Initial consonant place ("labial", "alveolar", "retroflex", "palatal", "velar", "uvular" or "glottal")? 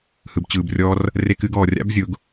glottal